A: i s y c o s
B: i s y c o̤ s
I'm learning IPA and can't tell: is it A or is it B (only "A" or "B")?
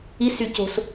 B